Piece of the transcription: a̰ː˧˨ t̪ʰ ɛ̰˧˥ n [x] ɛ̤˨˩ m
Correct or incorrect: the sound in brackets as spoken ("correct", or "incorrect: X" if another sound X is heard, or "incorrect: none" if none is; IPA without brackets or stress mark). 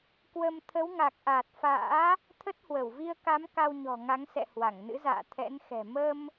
correct